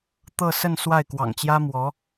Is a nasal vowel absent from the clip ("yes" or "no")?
yes